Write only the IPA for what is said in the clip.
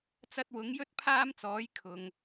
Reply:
t͡s ɐ˧ t̚ w ʊ˨˥ ŋ j ɵ˥ t̚ pʰ aː˥ m t͡s ɔː˨˥ j kʰ ʊ˨ ŋ

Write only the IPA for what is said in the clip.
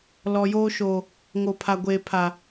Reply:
l ɔ˨ j oː˦ ʃ oː˨ | ŋ o˨ pʰ a˨ ɡʷ eː˨ pʰ a˨

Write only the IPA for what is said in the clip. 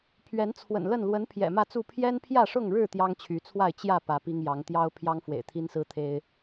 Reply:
pʰ ɥ ɛ˨˦ n t͡sʰ w ə̰˨˩ n l ə˥˨ n l w ə˨˦ n pʰ j ɛ̰˨˩ m ä˥˨ t͡s u˥˨ pʰ j ɛ˦ n pʰ j ä˥˨ ʂ ʊ˥˨ ŋ ɻ ɻ̩˥˨ t̪ j ɑ˦ ŋ t͡ɕʰ y˨˦ t͡sʰ w a˥˨ ɪ̯ t͡ɕ j ä˥˨ p ä˨˦ p i˦ ŋ j ɑ˨˦ ŋ t̪ j ɑ˦ ʊ̯ pʰ j ɑ˦ ŋ f w ḛ˨˩ ɪ̯ t̪ʰ i˦ n s ɹ̩˦ t̪ʰ e˦ ɪ̯

